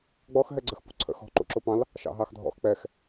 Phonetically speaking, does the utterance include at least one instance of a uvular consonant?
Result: no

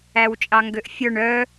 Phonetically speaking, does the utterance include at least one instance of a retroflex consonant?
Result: yes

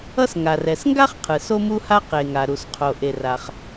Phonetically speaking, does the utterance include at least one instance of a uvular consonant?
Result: yes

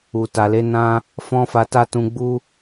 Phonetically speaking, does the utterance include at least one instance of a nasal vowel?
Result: yes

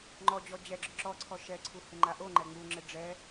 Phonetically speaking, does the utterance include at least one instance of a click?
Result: yes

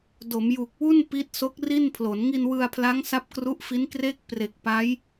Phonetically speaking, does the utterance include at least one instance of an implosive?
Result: no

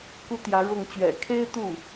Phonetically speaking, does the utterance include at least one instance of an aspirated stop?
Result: yes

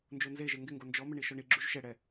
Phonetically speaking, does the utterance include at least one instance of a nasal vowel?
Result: no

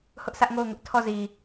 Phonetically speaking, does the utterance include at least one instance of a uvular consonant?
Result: no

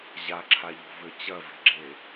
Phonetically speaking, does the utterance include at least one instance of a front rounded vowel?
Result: yes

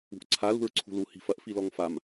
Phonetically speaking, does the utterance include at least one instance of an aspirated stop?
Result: yes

